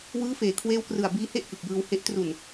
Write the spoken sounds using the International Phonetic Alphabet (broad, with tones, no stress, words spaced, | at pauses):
wɯː˦˥feː˨˩kʰweː˦˥wkrɯ˨˩a̯ biː˦˥he˥˩ʔ kɯ˨˩k̚jɯː˧whe˦˥ʔ tru˨˩n